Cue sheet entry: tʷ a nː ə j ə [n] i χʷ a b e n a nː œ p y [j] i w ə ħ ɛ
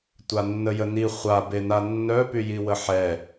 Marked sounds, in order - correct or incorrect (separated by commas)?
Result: correct, correct